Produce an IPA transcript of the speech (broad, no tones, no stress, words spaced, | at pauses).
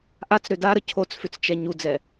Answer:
ʔat͡sɾø daɾə cʰot͡sfʏt͡st͡ʃɛ ɲud͡zɛ